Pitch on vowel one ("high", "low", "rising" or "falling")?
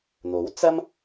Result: rising